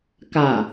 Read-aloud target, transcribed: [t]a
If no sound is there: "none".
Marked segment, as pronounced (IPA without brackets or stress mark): k